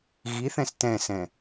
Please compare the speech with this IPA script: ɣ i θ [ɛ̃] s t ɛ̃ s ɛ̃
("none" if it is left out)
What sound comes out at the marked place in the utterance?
ɛ̃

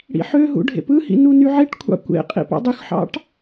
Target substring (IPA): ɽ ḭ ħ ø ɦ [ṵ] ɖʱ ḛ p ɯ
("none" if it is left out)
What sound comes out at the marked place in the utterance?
ṵ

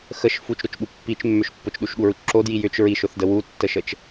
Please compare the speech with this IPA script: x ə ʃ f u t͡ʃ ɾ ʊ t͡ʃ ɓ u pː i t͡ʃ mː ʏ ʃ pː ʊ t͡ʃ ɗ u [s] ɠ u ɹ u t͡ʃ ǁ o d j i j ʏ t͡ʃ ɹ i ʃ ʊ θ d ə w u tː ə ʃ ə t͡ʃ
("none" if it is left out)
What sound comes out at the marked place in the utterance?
ʃ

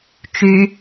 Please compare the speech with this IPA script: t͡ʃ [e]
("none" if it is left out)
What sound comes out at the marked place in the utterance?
y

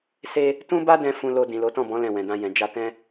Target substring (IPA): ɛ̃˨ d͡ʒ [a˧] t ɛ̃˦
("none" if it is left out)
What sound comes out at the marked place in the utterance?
a˧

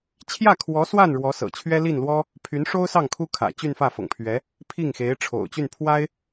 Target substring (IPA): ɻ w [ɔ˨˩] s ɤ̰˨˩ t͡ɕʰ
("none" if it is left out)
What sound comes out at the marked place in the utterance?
ɔ˧˥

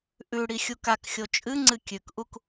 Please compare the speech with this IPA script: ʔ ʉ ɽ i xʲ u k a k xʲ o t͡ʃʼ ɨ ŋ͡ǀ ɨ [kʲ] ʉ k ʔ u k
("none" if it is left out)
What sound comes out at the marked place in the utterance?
kʲ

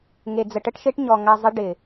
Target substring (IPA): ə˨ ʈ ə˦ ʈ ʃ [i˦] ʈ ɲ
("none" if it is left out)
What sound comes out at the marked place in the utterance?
e˦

